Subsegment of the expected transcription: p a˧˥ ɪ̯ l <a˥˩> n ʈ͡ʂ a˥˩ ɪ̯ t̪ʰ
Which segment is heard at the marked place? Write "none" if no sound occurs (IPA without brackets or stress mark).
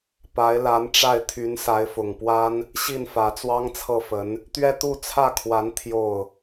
a˧˥